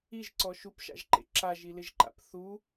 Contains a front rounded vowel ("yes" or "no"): no